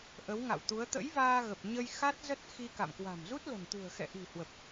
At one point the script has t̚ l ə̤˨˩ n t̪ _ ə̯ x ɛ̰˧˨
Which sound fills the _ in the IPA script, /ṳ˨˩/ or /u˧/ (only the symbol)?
ṳ˨˩